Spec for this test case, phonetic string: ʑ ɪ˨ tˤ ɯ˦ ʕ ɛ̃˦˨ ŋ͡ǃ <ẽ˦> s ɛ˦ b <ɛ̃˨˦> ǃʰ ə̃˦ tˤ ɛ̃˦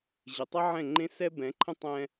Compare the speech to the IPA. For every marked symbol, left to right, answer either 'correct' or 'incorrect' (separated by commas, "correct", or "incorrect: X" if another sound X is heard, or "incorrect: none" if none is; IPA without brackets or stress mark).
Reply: correct, correct